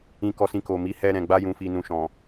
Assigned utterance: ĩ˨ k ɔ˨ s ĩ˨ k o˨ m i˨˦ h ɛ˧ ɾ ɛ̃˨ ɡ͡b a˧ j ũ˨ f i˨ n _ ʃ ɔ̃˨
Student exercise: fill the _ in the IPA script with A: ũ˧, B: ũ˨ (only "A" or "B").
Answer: B